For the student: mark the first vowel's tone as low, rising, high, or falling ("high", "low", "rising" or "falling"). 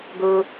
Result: high